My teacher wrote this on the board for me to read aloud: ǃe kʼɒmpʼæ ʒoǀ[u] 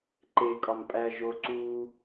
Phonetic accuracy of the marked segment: incorrect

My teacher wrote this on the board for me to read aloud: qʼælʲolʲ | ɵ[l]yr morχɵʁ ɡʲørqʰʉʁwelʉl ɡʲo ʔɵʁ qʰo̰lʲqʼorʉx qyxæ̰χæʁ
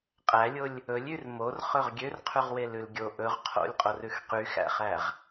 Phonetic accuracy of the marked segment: incorrect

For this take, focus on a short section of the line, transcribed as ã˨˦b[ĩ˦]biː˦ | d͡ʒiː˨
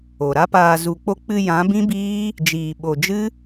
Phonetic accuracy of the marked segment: correct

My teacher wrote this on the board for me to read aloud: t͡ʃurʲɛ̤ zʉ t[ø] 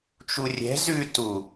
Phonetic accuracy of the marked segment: incorrect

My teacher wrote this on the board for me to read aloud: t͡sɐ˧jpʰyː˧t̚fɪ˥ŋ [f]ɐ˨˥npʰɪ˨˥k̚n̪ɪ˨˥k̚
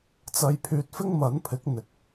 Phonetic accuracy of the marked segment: incorrect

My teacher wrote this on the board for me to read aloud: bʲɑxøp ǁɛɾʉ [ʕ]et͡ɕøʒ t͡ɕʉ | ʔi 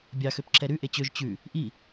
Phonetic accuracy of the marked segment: incorrect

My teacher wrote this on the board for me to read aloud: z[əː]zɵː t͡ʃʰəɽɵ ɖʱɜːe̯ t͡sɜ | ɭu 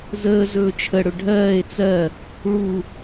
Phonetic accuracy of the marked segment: correct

